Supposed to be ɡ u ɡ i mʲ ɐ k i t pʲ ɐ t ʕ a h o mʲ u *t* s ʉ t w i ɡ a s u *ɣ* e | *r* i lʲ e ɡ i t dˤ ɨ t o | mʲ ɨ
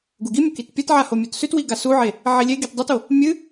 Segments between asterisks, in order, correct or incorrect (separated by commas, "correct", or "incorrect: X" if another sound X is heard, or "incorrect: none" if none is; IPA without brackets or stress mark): correct, incorrect: ʕ, incorrect: ʕ